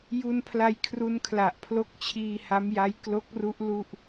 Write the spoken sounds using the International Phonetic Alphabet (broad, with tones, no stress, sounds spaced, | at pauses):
j u˧ n pʰ l a˧ j kʰ r u˧ n kʰ l a˨˩ ʔ pʰ l o˦˥ k̚ t͡ɕʰ iː˧ h a˦˥ m j a˦˥ j k l o˦˥ k̚ r u˦˥ ʔ l u˥˩ ʔ